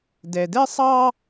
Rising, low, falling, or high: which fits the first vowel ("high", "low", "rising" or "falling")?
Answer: low